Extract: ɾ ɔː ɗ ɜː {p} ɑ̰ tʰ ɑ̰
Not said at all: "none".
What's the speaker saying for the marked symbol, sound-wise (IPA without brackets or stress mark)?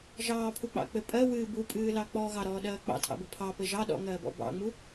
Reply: k͡p